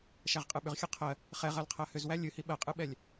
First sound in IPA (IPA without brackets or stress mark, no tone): ʃ